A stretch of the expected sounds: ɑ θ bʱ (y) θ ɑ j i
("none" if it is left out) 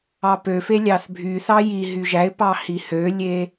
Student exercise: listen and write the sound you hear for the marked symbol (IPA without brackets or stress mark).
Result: y